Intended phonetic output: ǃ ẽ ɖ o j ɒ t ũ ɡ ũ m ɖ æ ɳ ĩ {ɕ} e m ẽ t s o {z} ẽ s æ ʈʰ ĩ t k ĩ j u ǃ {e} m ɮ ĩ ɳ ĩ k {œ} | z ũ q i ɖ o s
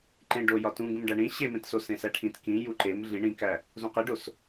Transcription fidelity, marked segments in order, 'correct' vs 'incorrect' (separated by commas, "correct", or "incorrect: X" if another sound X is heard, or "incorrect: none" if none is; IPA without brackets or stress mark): correct, incorrect: s, correct, incorrect: æ